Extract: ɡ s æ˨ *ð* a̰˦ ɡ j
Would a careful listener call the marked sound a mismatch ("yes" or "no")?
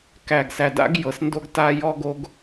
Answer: yes